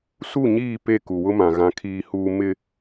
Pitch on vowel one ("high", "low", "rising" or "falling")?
falling